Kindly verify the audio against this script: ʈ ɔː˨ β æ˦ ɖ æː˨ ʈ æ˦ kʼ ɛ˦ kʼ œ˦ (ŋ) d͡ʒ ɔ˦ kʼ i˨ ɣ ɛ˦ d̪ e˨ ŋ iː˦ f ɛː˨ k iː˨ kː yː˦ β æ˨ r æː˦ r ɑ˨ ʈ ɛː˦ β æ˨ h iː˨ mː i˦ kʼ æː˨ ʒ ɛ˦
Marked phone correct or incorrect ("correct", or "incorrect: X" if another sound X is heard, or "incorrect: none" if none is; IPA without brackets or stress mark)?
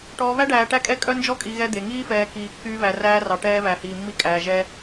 incorrect: n